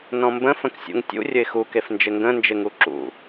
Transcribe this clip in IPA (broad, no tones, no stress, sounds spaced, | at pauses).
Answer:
n ɔ̃ m b ə̃ f ə̃ k sʲ ṵ ŋ tʲ ṵ rʲ ə ɪ̯ x u k e f n d͡ʒ ɪ ŋ ɡ ə̃ n d͡ʒ ɪ ŋ u ǁ ṵ